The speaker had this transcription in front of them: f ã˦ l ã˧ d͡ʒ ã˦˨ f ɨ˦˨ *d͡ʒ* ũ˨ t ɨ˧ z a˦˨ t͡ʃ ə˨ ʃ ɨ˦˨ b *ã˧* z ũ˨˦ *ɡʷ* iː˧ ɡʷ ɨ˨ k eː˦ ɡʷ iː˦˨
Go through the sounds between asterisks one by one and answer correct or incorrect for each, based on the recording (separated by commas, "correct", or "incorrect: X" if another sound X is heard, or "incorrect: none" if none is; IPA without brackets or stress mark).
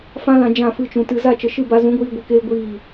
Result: incorrect: t͡ʃ, incorrect: a˧, correct